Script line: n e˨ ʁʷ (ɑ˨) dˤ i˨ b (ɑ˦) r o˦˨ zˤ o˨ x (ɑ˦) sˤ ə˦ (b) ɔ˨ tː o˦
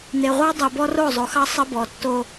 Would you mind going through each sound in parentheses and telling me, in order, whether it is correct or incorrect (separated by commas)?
incorrect, incorrect, correct, correct